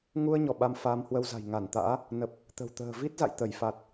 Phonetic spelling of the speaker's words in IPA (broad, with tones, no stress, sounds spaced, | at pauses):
ŋ u˧ ə̯ ɲ ɔ˧˩ ɓ a˧ m f aː˧ m h w ə˧ w z a̤˨˩ j ŋ a˧˩ n t̪ a̰ː˧˥ | n ə˨˩ p̚ | t̪ ə̤˨˩ w t̪ ə̤ː˨˩ v i˦˥ t̚ z a̰˧˨ j t̪ ə˧˩ j f a˨˩ t̚